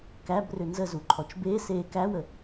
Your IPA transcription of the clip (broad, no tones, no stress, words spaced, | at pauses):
kæbrʏ nzəzuǃʰɔt͡ʃ beːseː kæwə